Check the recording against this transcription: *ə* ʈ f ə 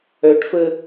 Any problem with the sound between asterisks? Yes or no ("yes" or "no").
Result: yes